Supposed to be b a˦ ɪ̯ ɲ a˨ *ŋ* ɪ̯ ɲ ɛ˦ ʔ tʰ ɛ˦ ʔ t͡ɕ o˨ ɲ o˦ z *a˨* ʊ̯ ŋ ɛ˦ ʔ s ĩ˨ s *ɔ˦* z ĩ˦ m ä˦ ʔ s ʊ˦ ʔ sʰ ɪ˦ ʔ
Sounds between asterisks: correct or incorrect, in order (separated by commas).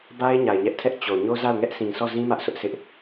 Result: incorrect, incorrect, incorrect